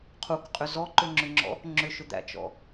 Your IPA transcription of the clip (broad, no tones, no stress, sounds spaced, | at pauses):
qʰ u k qʼ ʏ z ɔ ǃ ʏ ŋ͡ǁ ʏ ŋ͡ǁ ɔ̰ | ŋ͡ǁ ʏ ʃ ʏ d̪ æ̰ t͡ʃ ɔ̰